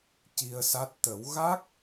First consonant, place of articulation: palatal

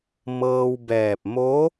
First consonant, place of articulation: labial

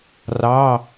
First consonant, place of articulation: alveolar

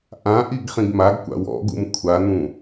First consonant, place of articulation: glottal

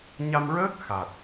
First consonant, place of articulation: palatal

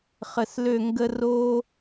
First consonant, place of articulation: uvular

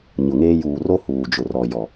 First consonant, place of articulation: palatal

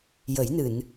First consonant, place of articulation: palatal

